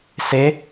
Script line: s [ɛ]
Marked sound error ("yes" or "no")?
yes